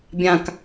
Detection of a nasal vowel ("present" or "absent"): present